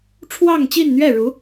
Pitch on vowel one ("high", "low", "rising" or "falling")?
falling